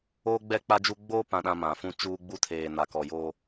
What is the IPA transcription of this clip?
oː˦ ɡ͡b ɛ˦˨ k͡p a˦ d͡ʒ u˦ ɡ͡b oː˦ p ã˨ ɗ ã˨ m ã˨ f ũ˦ t͡ʃ uː˦ ɡ͡b u˦ tʰ eː˨ n a˨ k ɔ˨ j o˦

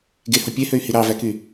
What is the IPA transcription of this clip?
ɡ e h o pʲ e h ø y̯ h i ɾ ɑ v æ k y

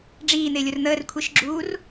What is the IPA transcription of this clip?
ɖ͡ʐ iː n̪ ɪː lʲ ʊ r n̪ əː r kʷʰ i ʃ ɡ͡ǁ uː r

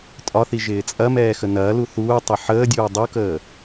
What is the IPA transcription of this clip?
tʼ ɒ θ i ʒ ɪː t͡sʼ ɐ m ɛː x ə n ɐː l u θ uː tˤ ɪ ħ əː dʲ uː dˤ u k əː

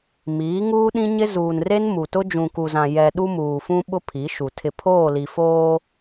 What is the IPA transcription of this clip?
m iː˨˦ ŋ uː˦ ɗ ĩ˦ ɲ ɪ˦ z uː˨ n r e˦ n m u˨ t ʊ˦ d͡ʒ ũ˨ k u˨ z ã˨ j ɛ˨ ɗ u˦ m uː˨ f ũ˦ ɓ ʊ˦ pʰ i˨˦ ʃ u˨ tʰ ɪ˨ pʰ oː˦˨ l i˨ f oː˦

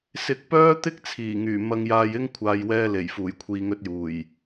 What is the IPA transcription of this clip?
s ɪ˨ k̚ p œː˥ t̪ ɪ˥ k̚ t͡sʰ iː˨˩ ŋ yː˨˩ m ɐ˧ ŋ j aː˧ j ɪ˥ ŋ kʷʰ aː˨ j w ɛː˧ l e˨˩ j f uː˨˩ j kʷʰ iː˨ ŋ ɵ˧ t̚ j uː˨˩ j

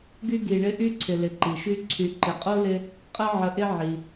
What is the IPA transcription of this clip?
ɡ y˦ ɡ i˨ ɳ ɪ˦ ʔ y˥ ǀʰ ɪ˨ l ɪ˨ ǃ i˩ ʃ y˦ ǀʰ y˨ ǃ ɪ˨ qʼ o˥ l ɪ˦ | qʼ ə˦ ʕ ə˨ ʔ ɪ˦ ʕ i˩

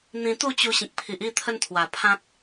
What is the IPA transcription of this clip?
n̪ ĩ˧ t̪ u˥˧ t͡ɕ u˧ ɕ ĩ˨ k̚ pʰ i˨ ʔ i˥˧ t̪ʰ ə˧ n t̪ʰ w a˨˩ pʰ ã˦ t̚

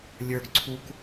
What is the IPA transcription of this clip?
lʲ ə˞ ɡ ǀʰ u k

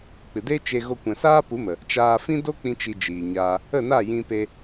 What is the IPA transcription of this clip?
k͡p ɨ˨ d e˦ t͡ʃ e˧ ɣ o˧ kʷ ɛ̃˨ s aː˦ p u˨˦ m ə˨ | t͡ʃ aː˧ f ĩ˦ d o˦ k͡p ĩ˧ t͡ʃ i˧ d͡ʒ iː˨ ɲ aː˧ | ə˦˨ n a˦˨ j ĩ˧ p e˧

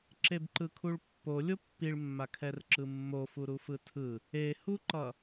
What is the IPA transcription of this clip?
ǁ e b ǃ ɯ kʰ u ɭ pː o lʲ o pː i ɭ mː a kʰ ɛ r ǁ ɯ mː o f u ɾ u f ɯ tʰ ɯ | e h u ǃ ʌ

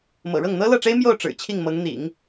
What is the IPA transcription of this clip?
m ɤ̰˨˩ ɻ ɤ˥˩ ŋ n̪ ɤ˥ l ɤ˥˩ ʈ͡ʂ e˥ ɪ̯ m j o˥˩ ʊ̯ ʈ͡ʂ ɻ̩˨˩ t͡ɕʰ i˥˩ ŋ m ɤ˧˥ ŋ n̪ ḭ˨˩˦ ŋ

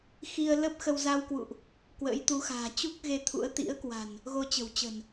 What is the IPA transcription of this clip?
x i˧ ə̯ l ə˦˥ p̚ x ə˧ w z a˧ w k w ṵ˧˨ ʔ | k w ə̰ː˧˥ j t̪ u˨˦ x a̤ː˨˩ t͡ɕ u˦˥ k̚ ɣ e˧ t̪ʰ ṵ˧˥ ə̯ t̪ ḭ˧˥ ə̯ k w a̤˨˩ n | ɣ o˧ t͡ɕ ə̤˨˩ w t͡ɕ ə̤˨˩ n

